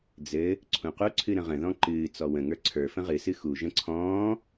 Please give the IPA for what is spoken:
d͡z ɘ | ǀʰ ũ q u ǀʰ ɨ ɾ ə̃ ʁ ə̃ ð ɔ̃ ǃ ɨː t͡s ɔ w ə̃ ŋ ə˞ ǀʰ ə˞ f ə̃ ʁ ɨ s ɨ x u ʒ ə̃ ǀʰ ɔ̃ː

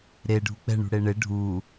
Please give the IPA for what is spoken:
ɾ e ɖʱ u k͡p ɛ̤ ɳ ṳ ɽ e ɳ e ɖʱ u

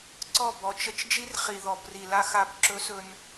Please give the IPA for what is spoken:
ǀ ɔ˦˨ b ɔ˨ t͡ʃ ə˦ t͡ʃ d͡ʒ i˦ r χ i˨ ð ɔ˨ b r i˨ l a˦ x a˦˨ b ǁ ɵ˦ s ɵ˦ n

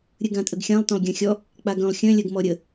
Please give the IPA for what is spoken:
ɾʲ ɨ ɡ ã tʼ ə ɡ xʲ ã lˠ t œ̃ lˠ ɡʲ ã xʲ ɔ | k͡p a ɡ œ̃ lˠ xʲ œ̃ lʲ ɜ ɡ m ɔ ɾʲ ə

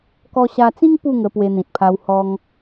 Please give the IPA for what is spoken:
k ɔ˧ ɕ a˧ t͡s ĩ˦ ŋ p u˥˧ ŋ ə˧ p w e˧ n̪ ĩ˨ t̚ pʰ a˧ w h ɔ˧ ŋ

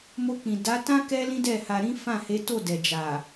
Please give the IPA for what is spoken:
m o˧ k͡p ĩ˨ d a˨˦ t ã˦ k ɛ˦ l ĩ˦ d ɛ˦˨ h a˧ ɾ ĩ˦ f ã˦˨ h e˨˦ t o˦˨ d ɛ˨ d͡ʒ a˨

